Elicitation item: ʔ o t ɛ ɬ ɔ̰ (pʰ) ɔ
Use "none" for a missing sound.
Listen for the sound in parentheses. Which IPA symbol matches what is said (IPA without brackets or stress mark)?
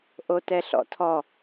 tʰ